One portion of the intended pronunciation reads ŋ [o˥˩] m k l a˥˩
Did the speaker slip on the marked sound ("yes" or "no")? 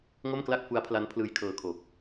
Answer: no